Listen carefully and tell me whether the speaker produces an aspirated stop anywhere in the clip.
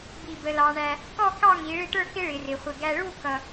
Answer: no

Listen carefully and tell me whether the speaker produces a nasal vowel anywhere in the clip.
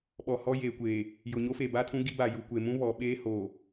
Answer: yes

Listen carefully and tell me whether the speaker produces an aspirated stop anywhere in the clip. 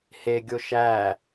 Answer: no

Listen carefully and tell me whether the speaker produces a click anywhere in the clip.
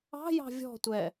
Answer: no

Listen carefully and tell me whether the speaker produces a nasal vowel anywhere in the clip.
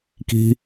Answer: no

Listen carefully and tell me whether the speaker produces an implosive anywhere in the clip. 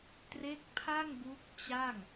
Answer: no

